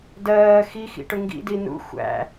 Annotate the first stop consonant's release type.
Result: plain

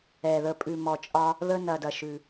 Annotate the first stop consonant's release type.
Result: ejective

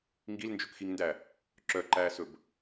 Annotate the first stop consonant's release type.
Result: plain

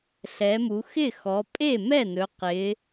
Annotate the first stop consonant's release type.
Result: ejective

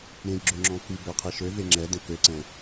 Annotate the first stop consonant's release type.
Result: click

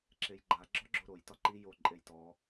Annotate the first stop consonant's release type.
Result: click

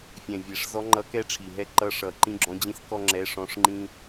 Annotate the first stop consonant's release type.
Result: click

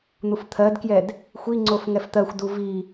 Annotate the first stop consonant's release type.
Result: aspirated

